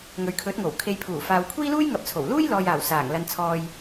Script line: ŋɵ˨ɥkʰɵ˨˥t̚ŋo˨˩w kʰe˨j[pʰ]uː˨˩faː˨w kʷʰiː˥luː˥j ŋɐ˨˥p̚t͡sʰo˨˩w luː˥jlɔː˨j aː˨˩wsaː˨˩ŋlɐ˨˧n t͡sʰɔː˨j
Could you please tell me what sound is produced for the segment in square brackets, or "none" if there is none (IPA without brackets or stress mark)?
pʰ